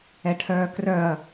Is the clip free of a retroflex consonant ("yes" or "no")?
no